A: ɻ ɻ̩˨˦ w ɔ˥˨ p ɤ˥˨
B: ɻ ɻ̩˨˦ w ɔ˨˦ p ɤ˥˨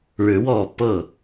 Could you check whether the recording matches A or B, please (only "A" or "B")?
A